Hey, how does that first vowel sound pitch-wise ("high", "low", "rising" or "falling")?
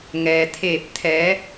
low